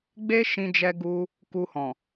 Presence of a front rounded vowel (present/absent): absent